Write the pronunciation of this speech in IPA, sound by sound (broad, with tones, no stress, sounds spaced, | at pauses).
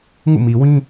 ŋ ṵ˦˨ m i˨ w ĩ˦